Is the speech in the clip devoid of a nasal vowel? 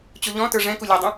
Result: no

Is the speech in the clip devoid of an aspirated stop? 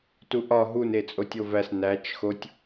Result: yes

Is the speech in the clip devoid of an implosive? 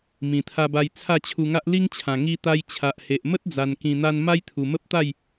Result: yes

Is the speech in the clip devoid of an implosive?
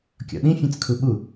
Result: no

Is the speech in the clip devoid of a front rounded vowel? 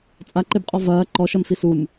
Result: yes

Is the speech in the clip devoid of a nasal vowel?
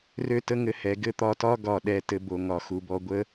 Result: yes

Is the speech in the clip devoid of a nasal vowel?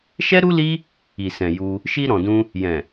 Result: no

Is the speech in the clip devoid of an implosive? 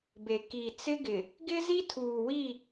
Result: yes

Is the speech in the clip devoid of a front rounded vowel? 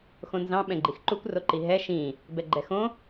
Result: yes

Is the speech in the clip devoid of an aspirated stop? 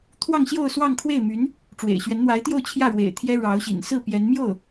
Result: no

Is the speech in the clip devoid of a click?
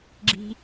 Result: no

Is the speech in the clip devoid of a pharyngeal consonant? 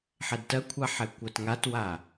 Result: no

